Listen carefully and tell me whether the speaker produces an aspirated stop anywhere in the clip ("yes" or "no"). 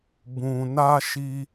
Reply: no